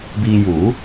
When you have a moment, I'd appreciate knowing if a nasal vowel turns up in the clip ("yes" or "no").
no